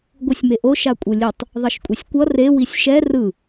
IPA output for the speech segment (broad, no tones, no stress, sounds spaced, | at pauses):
ɡʷ ɯ sʲ m e ʔ o ʃ a kʷʼ ɯ lʲ ɯ tˤ | ðˤ ʌ ʃ kʷʼ e sʲ kʷ ʌ r e w i sʲ ʃ ɛ r ɯ